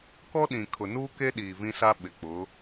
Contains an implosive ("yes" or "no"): yes